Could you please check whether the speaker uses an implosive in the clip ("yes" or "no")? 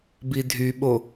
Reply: yes